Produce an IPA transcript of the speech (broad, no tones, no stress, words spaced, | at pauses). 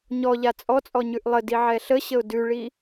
ɲɔʎa t͡sʼɔt͡sʼɔ ɲʉʔlˠədi ʕɛɬəɕəʊ̯ dʉɭi